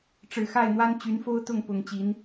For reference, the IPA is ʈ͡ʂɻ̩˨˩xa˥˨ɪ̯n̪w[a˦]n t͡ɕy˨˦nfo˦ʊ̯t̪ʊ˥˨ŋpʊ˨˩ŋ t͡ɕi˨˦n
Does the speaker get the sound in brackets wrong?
no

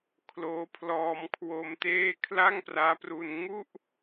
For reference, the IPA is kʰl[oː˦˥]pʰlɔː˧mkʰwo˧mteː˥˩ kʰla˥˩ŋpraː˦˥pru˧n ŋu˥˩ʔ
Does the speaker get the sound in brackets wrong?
no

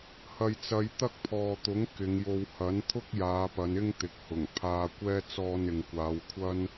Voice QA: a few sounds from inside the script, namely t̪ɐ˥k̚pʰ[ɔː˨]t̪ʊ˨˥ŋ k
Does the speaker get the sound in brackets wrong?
no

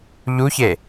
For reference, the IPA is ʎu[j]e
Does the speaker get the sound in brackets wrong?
yes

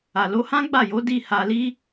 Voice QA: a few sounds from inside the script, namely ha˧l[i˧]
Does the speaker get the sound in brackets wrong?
yes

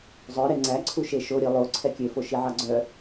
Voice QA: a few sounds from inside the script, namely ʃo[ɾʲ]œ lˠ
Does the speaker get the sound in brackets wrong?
no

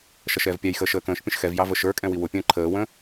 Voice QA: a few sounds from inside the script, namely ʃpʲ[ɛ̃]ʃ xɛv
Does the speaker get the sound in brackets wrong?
yes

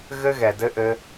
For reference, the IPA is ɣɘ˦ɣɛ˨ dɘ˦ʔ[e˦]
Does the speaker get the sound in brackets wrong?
yes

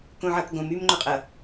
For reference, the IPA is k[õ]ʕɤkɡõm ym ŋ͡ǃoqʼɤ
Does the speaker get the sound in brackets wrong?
no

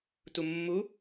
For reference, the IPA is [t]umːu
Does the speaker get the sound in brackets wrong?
no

